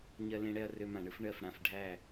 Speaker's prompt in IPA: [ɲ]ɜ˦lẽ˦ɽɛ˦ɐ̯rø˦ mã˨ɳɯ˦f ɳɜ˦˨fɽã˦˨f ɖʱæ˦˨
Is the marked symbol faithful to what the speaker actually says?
yes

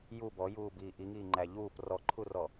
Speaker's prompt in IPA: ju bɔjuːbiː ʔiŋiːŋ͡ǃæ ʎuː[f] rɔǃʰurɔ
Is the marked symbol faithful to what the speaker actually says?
no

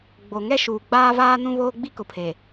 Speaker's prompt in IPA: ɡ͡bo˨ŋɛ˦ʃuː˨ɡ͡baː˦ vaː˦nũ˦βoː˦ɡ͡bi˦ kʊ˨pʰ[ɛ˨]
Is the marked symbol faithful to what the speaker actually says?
no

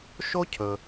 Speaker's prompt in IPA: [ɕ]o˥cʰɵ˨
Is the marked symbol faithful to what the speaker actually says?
no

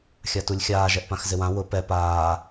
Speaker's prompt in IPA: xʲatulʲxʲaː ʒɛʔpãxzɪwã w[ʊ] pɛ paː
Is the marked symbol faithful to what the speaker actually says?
yes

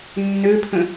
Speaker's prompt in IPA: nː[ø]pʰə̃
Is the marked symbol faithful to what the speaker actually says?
yes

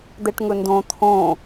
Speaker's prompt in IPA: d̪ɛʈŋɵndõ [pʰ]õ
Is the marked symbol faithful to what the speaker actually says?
no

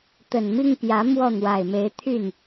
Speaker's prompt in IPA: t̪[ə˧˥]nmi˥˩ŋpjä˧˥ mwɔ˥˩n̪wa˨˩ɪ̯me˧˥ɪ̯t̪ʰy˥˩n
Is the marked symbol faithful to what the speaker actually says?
no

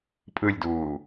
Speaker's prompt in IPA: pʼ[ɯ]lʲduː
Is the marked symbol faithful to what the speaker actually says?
yes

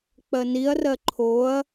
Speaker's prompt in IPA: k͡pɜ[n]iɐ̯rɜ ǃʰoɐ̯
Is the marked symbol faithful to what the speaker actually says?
yes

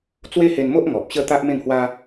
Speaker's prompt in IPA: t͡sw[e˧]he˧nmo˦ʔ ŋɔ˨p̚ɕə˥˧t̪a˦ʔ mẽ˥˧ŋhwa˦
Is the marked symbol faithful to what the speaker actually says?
no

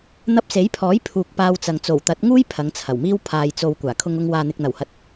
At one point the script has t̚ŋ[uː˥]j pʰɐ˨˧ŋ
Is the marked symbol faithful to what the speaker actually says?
yes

